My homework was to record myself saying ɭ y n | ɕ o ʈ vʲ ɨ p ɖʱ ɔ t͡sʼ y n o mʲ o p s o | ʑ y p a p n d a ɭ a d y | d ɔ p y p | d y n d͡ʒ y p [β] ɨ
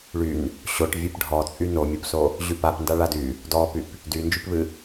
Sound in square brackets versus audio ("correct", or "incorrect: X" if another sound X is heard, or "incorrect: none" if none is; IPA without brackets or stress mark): correct